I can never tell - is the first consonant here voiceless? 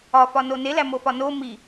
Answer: yes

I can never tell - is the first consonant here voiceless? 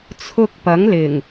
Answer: yes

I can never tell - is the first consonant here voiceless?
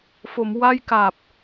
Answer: yes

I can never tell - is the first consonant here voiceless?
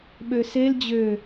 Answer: no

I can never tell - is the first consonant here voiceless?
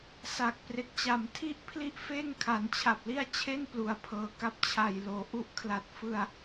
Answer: yes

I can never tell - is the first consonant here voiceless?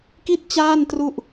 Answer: yes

